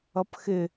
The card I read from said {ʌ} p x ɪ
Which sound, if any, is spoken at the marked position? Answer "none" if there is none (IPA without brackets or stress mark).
ʌ